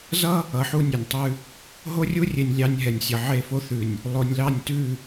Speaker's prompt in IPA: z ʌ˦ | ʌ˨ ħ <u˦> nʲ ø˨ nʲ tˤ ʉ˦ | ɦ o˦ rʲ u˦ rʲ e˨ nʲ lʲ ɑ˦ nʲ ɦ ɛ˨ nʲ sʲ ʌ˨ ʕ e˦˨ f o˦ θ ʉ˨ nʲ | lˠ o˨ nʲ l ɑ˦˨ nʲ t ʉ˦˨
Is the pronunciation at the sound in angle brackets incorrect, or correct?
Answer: correct